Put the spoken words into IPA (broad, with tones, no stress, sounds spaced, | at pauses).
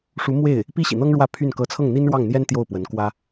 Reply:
ʂ u˧˥ m w e˥˩ ɪ̯ | p i˥ ɕ ḭ˨˩ n̪ ɤ˥ ŋ ɻ w ä˥˧ pʰ y˥˩ n k ɤ˧˥ t͡sʰ ɤ˥˩ ŋ n̪ i˥ n ɻ w ɑ˥˩ ŋ n̪ j ɛ˥ n t̪ j o˥˩ ʊ̯ p w ə˧˥ n k w ä˥